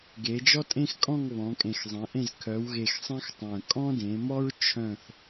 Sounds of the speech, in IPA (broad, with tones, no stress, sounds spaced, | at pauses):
ɡ e˩˧ d͡ʒ ɔ˦ tʼ ẽ˦ x kʼ ɔ̃˦˨ ŋ β ɔ̃˩˧ kʼ ẽ˨˩ x zˤ ẽ˩˧ ʔ ẽ˦˨ z kʰ œ˩˧ w ɣ e˨˩ x sˤ ẽ˦ x tˤ œ̃˨˩ kʼ ɔ̃˦ d ẽ˩˧ m ɔ˦ ɹ t͡ʃʰ œ̃˦˨ θ